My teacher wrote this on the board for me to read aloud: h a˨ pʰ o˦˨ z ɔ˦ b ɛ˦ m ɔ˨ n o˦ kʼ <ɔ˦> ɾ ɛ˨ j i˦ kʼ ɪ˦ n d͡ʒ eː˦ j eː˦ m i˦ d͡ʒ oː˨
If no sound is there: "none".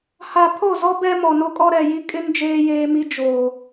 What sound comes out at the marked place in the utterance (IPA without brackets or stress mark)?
ɔ˦